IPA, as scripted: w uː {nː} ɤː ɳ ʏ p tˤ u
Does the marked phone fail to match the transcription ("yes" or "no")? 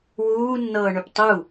no